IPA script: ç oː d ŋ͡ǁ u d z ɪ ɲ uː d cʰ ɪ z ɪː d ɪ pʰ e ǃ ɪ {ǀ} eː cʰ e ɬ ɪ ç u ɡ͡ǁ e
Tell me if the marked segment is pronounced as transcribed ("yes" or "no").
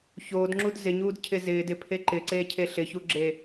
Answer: yes